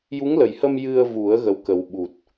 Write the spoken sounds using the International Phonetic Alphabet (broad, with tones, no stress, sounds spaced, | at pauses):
j u˧˥ ŋ l ə˨˩ j h ə˧ m j ɨ˧ ə̯ v u˨˩˦ ə̯ ɣ ə˧˥ w k ə˨˩˦ w ɓ u˨˩ t̚